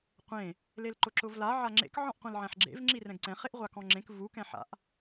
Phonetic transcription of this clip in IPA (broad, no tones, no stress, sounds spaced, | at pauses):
qʷ ẽ | l e l ǃ ʊ ǁ ʊ v l a ʕ a ŋ͡ǁ ḛ k ʕ ɔ̃ ʔ qʷ ɛ̃ l ʕ ɛ̃ ħ ɡ͡ǁ ḛ v ŋ͡ǁ i r ɛ̃ ɡ ǀ ɛ̃ χ e ʔ ʁʷ a k ɔ̃ ŋ͡ǁ ẽ k v u k ɛ̃ ħ a̰ ʔ